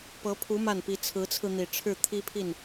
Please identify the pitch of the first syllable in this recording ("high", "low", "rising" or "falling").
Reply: rising